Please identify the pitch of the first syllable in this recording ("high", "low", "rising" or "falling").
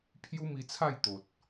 high